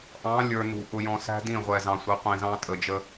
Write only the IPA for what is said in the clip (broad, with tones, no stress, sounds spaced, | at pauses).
ʔ ɑ̃˨˦ lʲ ə˞˨ n ṳ˨ ʔ ʊ˨ j ɔ̃˨ s æ̤˦ d ĩ˦˨ ʁʷ ɛ˨ z ɑ̃˨ sʷ ɪ˨˦ qʷ ĩ˨ z ɑ̃˦ tʼ ə˨ d͡ʒ ə˦